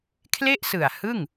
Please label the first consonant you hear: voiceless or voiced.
voiceless